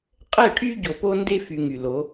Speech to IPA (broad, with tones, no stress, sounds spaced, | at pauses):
qʼ ɛ˦˨ ʈʰ y˦ ɟ o˨ p o˦ n d e˦ f y˨ ŋ y˨ l o˨˦